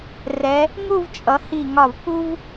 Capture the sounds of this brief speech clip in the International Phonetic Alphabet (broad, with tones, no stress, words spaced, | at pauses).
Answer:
rɛ˩˧ | ŋu˥˧vt͡ʃʼʌ˩˧ hi˧˩ŋɒ˧˩v pu˥v